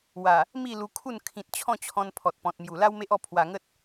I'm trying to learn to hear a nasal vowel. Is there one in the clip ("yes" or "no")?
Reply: yes